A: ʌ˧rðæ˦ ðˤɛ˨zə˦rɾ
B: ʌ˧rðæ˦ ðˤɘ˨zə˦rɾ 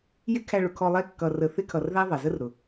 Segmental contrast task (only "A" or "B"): A